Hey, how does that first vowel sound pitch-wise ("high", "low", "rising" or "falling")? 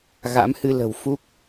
rising